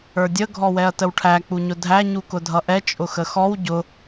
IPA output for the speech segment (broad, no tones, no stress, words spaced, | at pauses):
ə˞dʲə ɡʱɔwɛɐ̯təwʈʰæ k͡puɲʊdʱæ ɲukʊdʱʌʔɛ t͡ʃʼʊxəxɔw ɟʊ